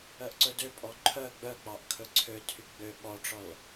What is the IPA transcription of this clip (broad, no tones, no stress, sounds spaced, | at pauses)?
œ ʔ ǀ ɵ d ø pʼ ɔ ǃʰ œ ɡ͡b œ k͡p ɑ ʔ kʰ ɵ ǀʰ ø tʰ y ɡ͡b ø ɓ ɔ ʈ͡ʂ ɔ l